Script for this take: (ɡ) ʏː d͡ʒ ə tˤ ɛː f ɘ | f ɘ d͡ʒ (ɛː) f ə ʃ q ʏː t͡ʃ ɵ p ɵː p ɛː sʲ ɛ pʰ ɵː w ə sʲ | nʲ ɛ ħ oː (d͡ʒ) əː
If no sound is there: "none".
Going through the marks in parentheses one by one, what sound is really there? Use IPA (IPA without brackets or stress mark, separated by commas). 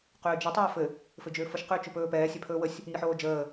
q, ʏː, d͡ʒ